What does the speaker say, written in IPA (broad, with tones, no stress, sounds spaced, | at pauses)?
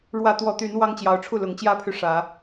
ɻ w ä˨˦ t̪ w ɔ˨˦ t̪ y˨˦ n w ɑ˦ ŋ t͡ɕ j ɑ˨˦ ʊ̯ ʈ͡ʂʰ u˥˨ l ʊ˨˦ ŋ t͡ɕ j ä˦ pʰ y˨ ʂ ä˨˦